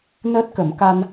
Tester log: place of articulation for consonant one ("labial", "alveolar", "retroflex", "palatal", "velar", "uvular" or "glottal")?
alveolar